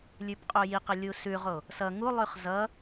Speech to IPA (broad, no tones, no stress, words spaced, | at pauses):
lʲʉbqʼojiqə lʲusʉʁo | sʌ ŋulˠʉχ zʌ